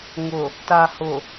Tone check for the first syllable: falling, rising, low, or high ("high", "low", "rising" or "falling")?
low